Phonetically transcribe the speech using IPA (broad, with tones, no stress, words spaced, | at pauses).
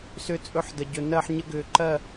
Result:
sʏ˥˧ t͡sʼɵ˥ħdə˧ ɟɵ˧nɜ˥˧ħɲə˥ ɡʏː˧ǃɜ˥˧